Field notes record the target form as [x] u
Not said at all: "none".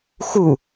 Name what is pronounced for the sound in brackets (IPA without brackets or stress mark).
x